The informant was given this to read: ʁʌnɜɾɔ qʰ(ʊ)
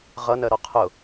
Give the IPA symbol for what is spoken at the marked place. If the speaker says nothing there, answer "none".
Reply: ʊ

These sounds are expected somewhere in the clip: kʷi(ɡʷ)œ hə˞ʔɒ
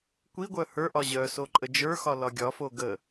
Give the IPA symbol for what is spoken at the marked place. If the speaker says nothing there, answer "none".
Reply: ɡʷ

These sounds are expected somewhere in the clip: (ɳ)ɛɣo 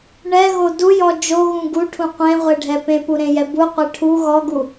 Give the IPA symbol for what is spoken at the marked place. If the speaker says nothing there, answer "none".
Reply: ɳ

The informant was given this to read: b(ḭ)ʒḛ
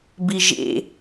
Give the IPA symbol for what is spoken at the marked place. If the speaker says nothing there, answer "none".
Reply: i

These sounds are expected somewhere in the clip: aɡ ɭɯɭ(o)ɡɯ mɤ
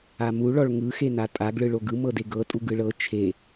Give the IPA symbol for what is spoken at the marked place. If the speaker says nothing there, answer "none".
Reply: o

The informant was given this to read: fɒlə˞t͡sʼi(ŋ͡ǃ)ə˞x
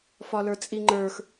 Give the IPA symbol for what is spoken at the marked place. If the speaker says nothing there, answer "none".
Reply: ŋ͡ǃ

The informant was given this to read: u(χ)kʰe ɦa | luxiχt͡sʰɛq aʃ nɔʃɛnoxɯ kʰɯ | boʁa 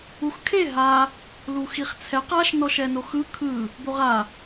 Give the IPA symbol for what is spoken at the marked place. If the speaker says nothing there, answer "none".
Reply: x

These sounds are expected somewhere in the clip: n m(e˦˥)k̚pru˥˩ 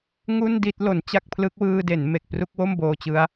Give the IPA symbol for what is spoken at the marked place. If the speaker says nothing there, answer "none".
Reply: e˨˩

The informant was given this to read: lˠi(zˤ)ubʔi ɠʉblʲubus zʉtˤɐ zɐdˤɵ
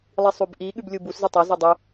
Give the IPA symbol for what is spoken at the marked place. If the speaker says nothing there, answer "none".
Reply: sˤ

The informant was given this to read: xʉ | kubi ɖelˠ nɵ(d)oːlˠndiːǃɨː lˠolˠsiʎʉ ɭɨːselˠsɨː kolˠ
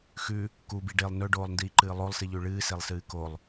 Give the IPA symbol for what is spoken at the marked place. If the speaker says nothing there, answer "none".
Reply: ɖ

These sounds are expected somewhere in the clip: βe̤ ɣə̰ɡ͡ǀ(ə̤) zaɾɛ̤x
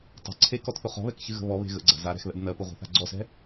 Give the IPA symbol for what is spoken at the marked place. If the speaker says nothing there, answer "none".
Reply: a̤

